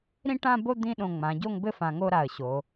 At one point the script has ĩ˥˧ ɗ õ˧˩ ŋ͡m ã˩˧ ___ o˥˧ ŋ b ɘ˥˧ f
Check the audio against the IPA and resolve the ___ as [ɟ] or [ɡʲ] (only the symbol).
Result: ɟ